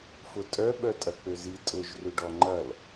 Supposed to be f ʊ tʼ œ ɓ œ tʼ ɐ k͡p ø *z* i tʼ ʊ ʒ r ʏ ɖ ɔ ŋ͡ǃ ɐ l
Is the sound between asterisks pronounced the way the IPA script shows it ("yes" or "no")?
yes